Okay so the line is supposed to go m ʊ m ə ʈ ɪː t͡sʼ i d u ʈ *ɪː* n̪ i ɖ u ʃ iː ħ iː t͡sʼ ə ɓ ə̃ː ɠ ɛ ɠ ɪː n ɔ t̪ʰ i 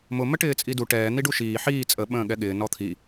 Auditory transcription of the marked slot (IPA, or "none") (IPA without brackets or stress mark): ɛː